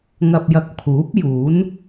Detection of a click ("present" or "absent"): absent